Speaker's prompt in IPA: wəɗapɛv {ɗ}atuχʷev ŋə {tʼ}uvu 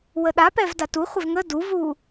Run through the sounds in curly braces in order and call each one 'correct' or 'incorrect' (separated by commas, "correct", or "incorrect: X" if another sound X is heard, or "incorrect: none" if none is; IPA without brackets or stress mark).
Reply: incorrect: d, incorrect: d